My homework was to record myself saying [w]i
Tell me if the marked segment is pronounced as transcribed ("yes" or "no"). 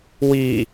yes